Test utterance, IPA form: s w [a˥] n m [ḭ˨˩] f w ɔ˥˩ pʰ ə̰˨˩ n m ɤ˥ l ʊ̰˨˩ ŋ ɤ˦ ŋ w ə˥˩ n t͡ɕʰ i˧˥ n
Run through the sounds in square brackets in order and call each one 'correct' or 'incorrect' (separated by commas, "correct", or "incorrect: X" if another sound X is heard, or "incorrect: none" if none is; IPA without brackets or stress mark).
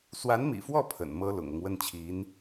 incorrect: a˧˥, correct